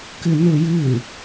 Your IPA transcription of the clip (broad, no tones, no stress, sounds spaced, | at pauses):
k ɨ n u j ɨ